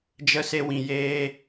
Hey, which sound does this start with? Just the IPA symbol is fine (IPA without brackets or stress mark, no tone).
d͡ʒ